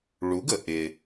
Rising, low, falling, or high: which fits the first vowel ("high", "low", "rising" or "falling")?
rising